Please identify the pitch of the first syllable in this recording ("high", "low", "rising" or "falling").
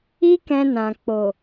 high